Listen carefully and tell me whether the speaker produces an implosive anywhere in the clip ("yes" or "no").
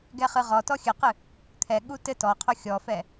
yes